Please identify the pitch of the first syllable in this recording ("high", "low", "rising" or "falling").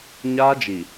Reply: high